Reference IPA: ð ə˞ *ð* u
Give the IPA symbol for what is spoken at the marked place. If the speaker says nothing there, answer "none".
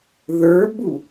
b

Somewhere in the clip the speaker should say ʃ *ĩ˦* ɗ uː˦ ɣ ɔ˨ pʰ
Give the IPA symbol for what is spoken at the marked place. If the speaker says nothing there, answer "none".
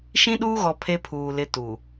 ĩ˦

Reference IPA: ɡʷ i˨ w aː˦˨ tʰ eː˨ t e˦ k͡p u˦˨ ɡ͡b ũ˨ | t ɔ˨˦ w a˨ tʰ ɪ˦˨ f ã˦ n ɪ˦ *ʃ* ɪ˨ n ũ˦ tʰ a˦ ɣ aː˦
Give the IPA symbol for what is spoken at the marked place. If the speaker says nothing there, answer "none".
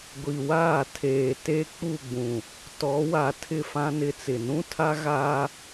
t͡s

